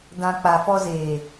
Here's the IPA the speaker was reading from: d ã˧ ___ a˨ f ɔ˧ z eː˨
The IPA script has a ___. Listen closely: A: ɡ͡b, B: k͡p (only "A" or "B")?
B